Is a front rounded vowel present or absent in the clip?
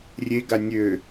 present